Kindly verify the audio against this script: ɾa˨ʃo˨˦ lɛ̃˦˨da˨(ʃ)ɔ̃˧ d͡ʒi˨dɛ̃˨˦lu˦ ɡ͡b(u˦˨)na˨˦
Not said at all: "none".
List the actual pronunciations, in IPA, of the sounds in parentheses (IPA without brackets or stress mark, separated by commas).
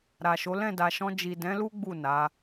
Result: ʃ, u˦˨